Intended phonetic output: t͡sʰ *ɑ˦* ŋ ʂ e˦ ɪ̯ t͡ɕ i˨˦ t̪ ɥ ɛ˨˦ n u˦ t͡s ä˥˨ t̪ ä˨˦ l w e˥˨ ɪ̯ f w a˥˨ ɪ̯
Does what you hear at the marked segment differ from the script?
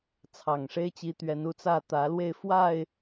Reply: yes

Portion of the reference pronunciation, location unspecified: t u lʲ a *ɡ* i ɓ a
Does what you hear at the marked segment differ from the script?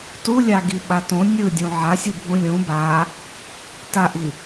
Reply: no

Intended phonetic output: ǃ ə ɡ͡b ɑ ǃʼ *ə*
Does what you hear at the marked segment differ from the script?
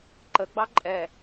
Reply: yes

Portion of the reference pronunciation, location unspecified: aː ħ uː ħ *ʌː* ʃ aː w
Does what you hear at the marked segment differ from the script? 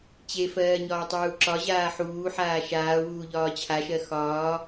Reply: yes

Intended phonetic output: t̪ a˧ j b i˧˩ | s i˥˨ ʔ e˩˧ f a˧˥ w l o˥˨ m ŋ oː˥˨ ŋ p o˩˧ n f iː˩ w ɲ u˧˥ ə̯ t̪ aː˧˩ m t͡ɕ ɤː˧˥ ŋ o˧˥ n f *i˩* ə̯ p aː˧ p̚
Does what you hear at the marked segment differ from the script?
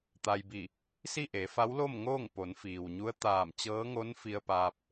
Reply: yes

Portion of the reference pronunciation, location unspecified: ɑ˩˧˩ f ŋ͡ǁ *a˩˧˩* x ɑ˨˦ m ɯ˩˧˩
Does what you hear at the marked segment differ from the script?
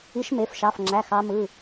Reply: yes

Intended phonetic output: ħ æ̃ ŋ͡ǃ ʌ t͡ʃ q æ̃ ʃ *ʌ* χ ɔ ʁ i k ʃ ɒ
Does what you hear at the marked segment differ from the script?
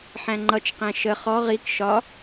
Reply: yes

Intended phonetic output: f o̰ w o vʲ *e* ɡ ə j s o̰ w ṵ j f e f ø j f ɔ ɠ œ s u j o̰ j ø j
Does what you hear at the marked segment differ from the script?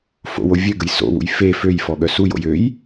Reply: yes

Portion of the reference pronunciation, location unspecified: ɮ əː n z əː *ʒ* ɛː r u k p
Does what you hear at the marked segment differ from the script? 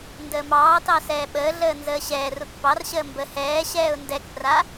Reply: yes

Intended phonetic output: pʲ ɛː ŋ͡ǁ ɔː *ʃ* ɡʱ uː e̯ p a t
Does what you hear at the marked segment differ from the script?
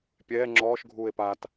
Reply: no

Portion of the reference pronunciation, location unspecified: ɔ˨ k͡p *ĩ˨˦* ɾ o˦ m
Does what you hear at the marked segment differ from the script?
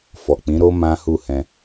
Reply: no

